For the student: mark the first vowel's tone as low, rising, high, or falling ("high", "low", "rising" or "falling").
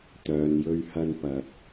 low